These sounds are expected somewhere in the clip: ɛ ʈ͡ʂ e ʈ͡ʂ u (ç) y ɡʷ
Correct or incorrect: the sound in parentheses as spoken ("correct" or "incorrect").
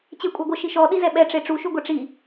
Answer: incorrect